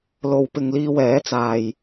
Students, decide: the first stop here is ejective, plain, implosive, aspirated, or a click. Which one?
plain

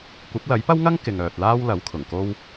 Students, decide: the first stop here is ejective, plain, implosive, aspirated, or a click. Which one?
plain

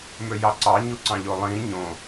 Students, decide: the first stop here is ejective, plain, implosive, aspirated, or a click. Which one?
click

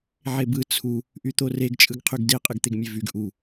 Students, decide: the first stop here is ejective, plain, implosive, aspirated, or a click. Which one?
plain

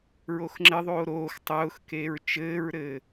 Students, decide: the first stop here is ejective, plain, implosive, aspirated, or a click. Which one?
click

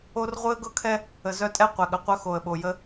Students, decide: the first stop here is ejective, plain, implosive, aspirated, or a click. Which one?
plain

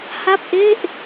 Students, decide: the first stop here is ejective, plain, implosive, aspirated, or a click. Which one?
plain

